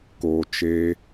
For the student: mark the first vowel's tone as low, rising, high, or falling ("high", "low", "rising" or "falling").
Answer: low